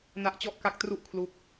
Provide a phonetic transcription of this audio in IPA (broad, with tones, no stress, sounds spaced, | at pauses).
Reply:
n a˦˥ ʔ t͡ɕ ɔ˥˩ ʔ k a˥˩ k̚ t r u˥˩ ʔ kʰ l u˦˥ k̚